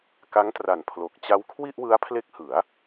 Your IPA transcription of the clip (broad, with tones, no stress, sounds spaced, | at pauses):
k a˦˥ ŋ t r a˨˩ n pʰ l o˨˩ k̚ t͡ɕ a˦˥ w kʰ w i˥˩ ʔ w ɯ˦˥ a̯ pʰ l e˦˥ k̚ h ɯ˩˦ a̯